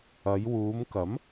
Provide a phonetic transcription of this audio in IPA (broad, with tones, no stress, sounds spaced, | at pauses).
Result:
ɐ˨˧ j w uː˨˧ m k ɐ˨˥ m